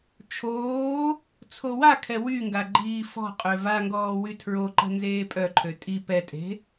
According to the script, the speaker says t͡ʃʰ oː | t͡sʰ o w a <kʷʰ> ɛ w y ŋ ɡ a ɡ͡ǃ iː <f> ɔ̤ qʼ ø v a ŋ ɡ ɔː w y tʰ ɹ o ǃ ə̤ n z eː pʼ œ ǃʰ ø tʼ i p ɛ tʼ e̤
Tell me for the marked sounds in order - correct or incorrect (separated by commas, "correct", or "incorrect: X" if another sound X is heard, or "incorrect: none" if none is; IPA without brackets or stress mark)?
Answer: incorrect: kʰ, correct